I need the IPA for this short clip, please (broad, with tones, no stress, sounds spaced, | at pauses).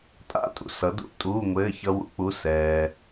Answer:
tʼ a̰˧˥˧ tʼ ṵ˩ s ʌ˩˥ d ṵ˧˥˧ tʼ uː˧˥˧ ŋʷ ɘː˧˥˧ ç ʌ˦˥ w ṵ˩˥ k͡p u˧˥˧ s ɛː˩